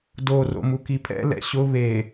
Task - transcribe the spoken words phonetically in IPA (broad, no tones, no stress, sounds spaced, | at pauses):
d o r o̰ m u k i pʰ ɛ̰ l ɛ̰ ɕ ʊ β e